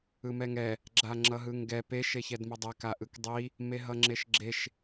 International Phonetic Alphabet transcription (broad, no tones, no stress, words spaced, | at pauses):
ɯmɛŋɛ | ɡ͡ǁaŋ͡ǁʌɦɯŋɡɛ pe ʃeçɛdmʌdˤɛk aʔɯkdˤi | meɦʌŋ͡ǁeʃɡ͡ǁeʃ